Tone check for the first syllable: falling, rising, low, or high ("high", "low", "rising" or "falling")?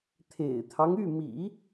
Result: low